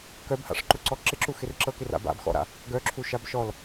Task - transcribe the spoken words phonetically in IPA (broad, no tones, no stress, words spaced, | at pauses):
kœbha̰ʂǃuǀɔ ǁɪǁuxɪr ǁɤkɪra̰b a̰bxɔ̰ɾa̰ | ɡœǁʰuʃab ʃɔl